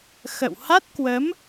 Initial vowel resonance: oral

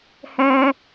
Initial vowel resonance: nasal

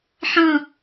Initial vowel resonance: nasal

